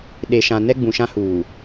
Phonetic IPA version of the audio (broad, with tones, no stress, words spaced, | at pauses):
ɗe˨ʃã˨ nɛ˦ɡ͡bũ˨ʃã˦ huː˨